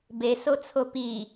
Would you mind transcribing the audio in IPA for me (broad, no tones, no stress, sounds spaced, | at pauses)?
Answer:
b e s o t͡sʰ o p i